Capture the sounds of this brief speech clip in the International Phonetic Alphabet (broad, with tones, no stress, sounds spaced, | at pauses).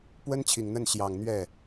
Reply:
p w ə˥ n t͡ɕʰ i˨˩ ŋ n̪ ə˥˩ n ɕ j ɑ˨˩ ŋ n̪ ɥ ɛ˥˩